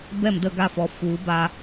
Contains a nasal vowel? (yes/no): no